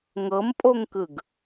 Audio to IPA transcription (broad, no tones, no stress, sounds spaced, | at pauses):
ŋ ɤ m pʼ o ŋ k ɯ ɡ